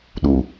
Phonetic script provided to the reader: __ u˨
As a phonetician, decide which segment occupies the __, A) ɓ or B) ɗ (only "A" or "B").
B